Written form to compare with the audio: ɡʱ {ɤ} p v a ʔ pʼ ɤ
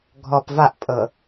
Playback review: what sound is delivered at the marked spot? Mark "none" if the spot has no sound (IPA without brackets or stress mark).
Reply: ɔ